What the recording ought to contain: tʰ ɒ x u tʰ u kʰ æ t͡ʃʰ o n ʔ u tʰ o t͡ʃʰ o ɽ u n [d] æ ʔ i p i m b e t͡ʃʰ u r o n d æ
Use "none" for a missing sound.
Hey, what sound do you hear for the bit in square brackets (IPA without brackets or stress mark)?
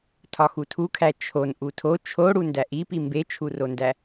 d